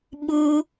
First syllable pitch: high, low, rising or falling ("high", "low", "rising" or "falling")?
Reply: high